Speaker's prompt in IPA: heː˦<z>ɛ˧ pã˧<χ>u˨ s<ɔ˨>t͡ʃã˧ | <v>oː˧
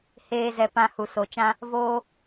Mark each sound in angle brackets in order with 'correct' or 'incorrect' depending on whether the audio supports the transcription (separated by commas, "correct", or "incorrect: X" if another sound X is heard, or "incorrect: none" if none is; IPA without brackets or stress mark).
correct, incorrect: h, incorrect: o˨, correct